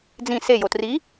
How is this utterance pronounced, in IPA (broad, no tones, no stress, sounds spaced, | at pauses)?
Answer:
d͡z ĩ s e j o t r i